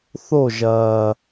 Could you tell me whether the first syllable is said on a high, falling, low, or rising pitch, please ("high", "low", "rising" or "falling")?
falling